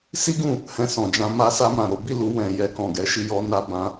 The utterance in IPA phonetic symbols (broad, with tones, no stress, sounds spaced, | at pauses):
s i˦ ɡ ũ˦˨ | h ɛ̃˧ s ɔ̃˨ d͡ʒ ã˧ m a˧ s a˧ m ã˨ ɾ o˨˦ b i˦˨ l u˧ w ɛ̃˨ j ɛ˧ k ɔ̃˨ ɡ ɛ˨˦ ʃ i˧ j ɔ˧ n a˧ b ã˧